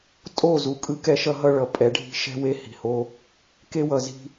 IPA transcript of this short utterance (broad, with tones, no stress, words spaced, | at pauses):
tʼo˦˨zu˨ kʼɯ˦kɛ˦ʃʌ˦ɦʌ˦ ɭʌ˨pʼɛ˨˦ɖʱi̤˦ ʃɛ̤˦ we˦hi̤˨ho˦ | ke˦wʌ˨zi̤˦